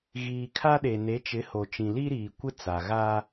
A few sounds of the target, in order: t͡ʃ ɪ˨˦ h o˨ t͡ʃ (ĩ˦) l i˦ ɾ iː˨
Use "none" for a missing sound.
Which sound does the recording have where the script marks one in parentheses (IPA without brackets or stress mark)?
ĩ˨